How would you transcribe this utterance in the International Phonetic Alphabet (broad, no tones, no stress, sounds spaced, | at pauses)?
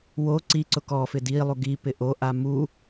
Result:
w o ǀ i ǀ ʊ k ɔ f ɪ d i lˠ u ɡ i p ɪ ʔ o ʔ a m u